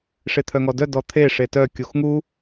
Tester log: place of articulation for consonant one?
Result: retroflex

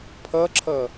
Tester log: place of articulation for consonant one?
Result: labial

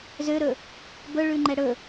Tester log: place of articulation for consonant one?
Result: alveolar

